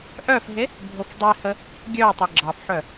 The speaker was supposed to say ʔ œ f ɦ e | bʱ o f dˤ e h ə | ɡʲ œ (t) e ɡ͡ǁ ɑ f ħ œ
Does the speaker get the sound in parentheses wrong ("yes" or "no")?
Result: yes